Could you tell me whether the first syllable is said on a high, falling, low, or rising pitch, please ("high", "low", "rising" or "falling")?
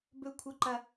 high